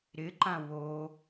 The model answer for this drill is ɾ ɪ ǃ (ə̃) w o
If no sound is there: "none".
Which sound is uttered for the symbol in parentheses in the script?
ã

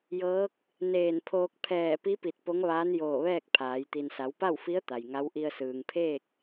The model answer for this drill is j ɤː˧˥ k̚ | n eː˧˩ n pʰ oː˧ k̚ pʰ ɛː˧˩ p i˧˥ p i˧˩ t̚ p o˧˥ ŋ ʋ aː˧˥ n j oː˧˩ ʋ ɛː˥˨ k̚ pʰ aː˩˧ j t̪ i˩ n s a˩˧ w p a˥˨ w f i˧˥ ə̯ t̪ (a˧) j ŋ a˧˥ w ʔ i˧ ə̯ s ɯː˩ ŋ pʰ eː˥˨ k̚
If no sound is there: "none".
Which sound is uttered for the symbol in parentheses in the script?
a˩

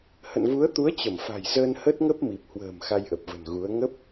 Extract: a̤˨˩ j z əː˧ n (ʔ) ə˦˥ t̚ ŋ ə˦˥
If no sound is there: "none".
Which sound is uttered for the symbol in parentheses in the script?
h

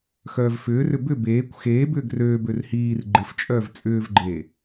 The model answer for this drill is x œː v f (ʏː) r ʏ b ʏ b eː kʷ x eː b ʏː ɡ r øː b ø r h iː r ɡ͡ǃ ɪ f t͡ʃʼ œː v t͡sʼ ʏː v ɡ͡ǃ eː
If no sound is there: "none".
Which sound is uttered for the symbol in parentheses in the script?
ʏː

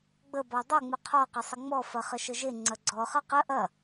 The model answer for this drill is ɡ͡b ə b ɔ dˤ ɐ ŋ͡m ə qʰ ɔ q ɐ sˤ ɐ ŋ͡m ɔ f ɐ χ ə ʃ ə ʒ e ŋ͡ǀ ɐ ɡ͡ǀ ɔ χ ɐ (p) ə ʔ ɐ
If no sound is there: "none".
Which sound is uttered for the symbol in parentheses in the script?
q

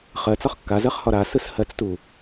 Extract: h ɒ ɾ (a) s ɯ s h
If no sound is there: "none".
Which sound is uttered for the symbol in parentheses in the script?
a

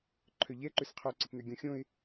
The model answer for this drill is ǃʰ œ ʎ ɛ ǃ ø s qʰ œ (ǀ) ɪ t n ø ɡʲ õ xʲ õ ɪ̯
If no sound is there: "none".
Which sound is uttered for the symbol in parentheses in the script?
ǀ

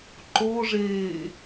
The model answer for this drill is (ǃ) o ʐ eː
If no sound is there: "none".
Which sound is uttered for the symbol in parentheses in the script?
ǃ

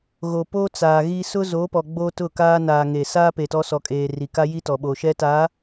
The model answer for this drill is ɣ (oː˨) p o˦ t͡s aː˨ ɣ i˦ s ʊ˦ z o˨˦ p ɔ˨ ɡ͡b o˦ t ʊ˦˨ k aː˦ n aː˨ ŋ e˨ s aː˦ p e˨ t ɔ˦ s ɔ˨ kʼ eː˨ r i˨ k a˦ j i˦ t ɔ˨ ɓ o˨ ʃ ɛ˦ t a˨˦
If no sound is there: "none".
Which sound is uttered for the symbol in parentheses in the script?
o˨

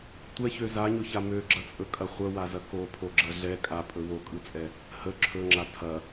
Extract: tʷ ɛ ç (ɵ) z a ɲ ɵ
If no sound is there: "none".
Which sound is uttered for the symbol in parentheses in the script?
ø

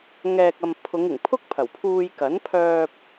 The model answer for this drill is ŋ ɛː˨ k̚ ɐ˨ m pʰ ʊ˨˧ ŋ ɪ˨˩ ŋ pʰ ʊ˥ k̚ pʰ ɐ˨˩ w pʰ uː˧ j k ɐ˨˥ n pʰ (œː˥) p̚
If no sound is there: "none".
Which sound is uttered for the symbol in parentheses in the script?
œː˧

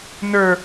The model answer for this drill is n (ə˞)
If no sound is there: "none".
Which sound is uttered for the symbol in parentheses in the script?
ə˞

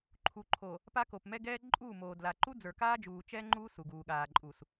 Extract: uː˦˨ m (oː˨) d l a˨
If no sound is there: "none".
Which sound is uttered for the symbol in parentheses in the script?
oː˨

